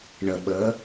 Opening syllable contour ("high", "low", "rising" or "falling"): low